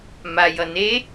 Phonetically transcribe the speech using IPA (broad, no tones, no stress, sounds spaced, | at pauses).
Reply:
m a j ʌ n e